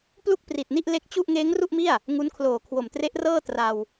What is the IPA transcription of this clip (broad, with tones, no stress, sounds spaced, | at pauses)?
p l u˥˩ k̚ p r i˨˩ t̚ n i˥˩ ʔ l e˦˥ k̚ t͡ɕ u˥˩ ʔ ŋ eː˦˥ ŋ r u˥˩ ʔ m i˥˩ a̯ | ŋ u˦˥ n kʰ l oː˨˩ kʰ w o˨˩ m t r e˦˥ ʔ r ɤː˥˩ t r a˧ w